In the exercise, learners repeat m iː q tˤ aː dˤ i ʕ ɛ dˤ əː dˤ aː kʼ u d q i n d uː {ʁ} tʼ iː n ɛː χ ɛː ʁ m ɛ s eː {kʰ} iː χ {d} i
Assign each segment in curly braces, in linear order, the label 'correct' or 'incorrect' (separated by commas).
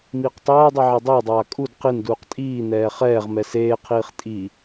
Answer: incorrect, incorrect, incorrect